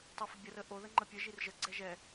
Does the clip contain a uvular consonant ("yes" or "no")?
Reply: no